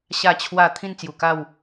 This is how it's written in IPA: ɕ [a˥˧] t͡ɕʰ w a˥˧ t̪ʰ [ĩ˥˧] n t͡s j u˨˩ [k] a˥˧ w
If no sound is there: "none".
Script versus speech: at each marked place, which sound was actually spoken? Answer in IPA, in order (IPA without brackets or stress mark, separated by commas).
a˥˧, ĩ˥˧, k